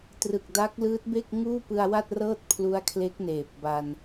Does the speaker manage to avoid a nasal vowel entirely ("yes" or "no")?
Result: yes